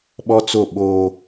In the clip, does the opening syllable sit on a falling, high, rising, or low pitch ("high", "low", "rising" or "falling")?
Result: high